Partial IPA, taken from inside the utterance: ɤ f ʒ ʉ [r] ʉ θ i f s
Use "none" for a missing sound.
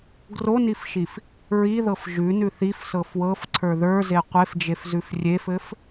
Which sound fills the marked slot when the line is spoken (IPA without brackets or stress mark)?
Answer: n